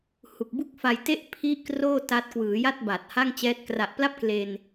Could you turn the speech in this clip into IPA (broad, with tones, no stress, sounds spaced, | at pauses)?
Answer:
h u˨˩ k̚ b u˥˩ k̚ f a˧ j t e˥˩ ʔ pʰ i˥˩ ʔ k r oː˥˩ t a˦˥ t̚ k w ɯː˩˦ j a˥˩ t̚ b a˨˩ t̚ h a˥˩ ŋ t͡ɕ ɛː˦˥ t̚ k r a˨˩ ʔ p l a˥˩ p̚ k l e˧ n